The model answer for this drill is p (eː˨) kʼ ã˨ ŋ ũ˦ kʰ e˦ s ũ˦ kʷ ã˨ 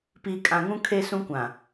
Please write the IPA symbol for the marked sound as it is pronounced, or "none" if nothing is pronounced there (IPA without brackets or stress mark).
iː˨